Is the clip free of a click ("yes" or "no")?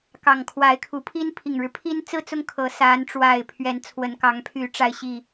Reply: yes